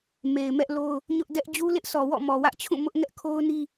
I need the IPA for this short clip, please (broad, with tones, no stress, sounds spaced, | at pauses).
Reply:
m e˨ ɪ̯ m ɛ˦ ʔ l o˦ ʊ̯ | ɲ ʊ˦ ʔ d ɛ˦ ʔ d͡ʑ u˦ l ɪ˦ ʔ sʰ ɔ˨ w ɔ̰˦˨ m ɔ˨ w ä˦ ʔ t͡ɕʰ ũ˦˨ m ʊ˦ ʔ ŋ ɛ˦ ʔ kʰ o˦ ʊ̯ n i˦